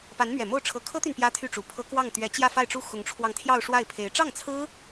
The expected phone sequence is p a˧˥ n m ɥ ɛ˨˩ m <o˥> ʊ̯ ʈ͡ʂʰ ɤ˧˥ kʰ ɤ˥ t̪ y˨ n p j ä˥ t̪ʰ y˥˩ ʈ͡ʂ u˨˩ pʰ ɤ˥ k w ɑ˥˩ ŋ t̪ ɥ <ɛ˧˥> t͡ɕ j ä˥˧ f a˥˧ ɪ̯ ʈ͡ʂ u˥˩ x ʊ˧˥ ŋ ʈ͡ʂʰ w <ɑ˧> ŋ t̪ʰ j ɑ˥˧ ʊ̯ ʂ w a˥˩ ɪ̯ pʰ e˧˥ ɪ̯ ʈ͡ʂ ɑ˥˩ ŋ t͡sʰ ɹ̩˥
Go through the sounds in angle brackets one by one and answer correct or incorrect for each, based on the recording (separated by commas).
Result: incorrect, correct, correct